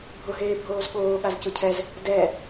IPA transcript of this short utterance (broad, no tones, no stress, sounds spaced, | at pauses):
bʱ ʊ ɦ eː bʱ oː z ɠ oː ɠ a z c ʊ cʰ ɛ z | d ɛ